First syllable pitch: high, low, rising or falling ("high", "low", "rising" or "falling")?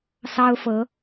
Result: high